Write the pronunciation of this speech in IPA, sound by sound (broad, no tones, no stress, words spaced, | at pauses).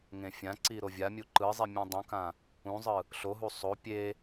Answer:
ŋẽfʲãǀi ɾovʲamʲu ǃɯzˤi mʲũdˤũkã | ũzˤɯ | ɬoɦu sˤo pʲe